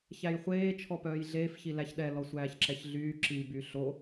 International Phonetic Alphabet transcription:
ç æ j χʷ eː t͡ʃʰ ɔ p œː j ɮ eː f ç i l æ ç ɗ ɛ l ɔ sʷ æː ç ǁ ɛ ç ɮ yː ǁ i b y ɬ o

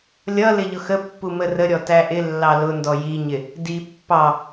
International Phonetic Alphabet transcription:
lʲ ʌ l ɪ ʎ ʊ x ə pː u m ə r ə ɾʲ ɔ t æ ʔ ɪ lː ɑ l ʊ n d ɔ j i ɲ ɪ | d i pː ɑ

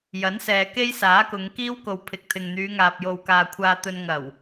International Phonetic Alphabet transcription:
j ɐ˨˥ n s ɛː˨ k e˥ j s aː˨˥ k ʊ˨˧ ŋ k iː˥ w k o˨ w pʰ ɪ˨ k̚ t̪ʰ ɪ˨ ŋ n̪ yː˨˧ ŋ aː˨ p̚ j o˨ w k aː˨ kʷʰ aː˧ t̪ ɵ˧ n ŋ ɐ˨˩ w

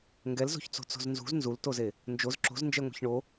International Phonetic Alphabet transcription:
ŋ ɡ ɛ l z o̤ ç t͡s o̤ t͡s o̤ z n z ṳ z n z u l t o z e | n d͡ʒ o z ǁ o̤ z n d͡ʒ ɛ ŋʷ ɛ̤ ç ɳ o

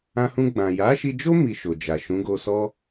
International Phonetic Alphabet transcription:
ã˧ h ũ˧ ɡ͡b ã˨ j a˨˦ ʃ i˧ d͡ʒ o˦ m i˧ ʃ o˨ d͡ʒ a˨ ʃ ũ˨˦ ɡ o˧ s ɔ˦

